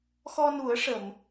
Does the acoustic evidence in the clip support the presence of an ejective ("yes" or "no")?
no